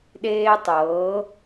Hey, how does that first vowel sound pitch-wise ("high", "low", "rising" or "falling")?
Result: high